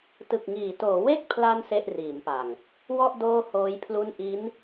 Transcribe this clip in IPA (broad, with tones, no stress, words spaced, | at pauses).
tɯ˨˩k̚ŋiː˩˦toː˩˦ we˥˩k̚pʰla˧n se˥˩ʔriː˩˦mpa˨˩ŋ | wɔ˥˩ʔ doː˥˩hoː˦˥jpʰlu˥˩n ʔi˦˥n